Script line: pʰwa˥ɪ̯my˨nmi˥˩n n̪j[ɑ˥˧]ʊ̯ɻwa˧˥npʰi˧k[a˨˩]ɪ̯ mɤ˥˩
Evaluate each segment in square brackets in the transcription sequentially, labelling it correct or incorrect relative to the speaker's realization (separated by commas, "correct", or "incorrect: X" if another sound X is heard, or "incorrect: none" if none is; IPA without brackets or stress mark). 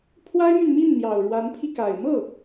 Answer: incorrect: ɑ˨˩, correct